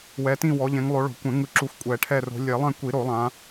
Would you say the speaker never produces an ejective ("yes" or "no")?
no